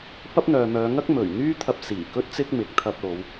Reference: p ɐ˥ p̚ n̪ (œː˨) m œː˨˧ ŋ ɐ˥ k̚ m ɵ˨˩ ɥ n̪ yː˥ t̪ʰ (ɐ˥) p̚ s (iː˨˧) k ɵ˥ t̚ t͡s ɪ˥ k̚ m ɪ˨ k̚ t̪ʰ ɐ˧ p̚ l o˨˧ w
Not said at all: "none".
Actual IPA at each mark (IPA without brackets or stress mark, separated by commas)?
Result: œː˨, ɐ˧, iː˨˩